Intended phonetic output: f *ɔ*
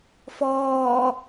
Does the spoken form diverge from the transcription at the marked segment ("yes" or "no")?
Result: yes